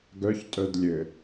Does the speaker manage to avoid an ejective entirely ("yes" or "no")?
no